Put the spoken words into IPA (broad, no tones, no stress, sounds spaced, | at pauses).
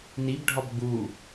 n i b ɖʱ ɒ b ɡ͡b u